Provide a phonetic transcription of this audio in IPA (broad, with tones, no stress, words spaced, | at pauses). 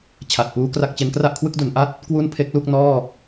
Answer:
t͡ɕʰa˨˩t̚puː˦˥ kra˥˩k̚t͡ɕe˦˥n kra˥˩ʔkʰwɯ˥˩k̚du˩˦n ʔa˥˩t̚ | kwu˥˩npʰe˦˥k̚lu˥˩k̚ nɔː˥˩